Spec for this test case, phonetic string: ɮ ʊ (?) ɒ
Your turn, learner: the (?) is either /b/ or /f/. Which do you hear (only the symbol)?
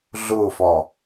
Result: f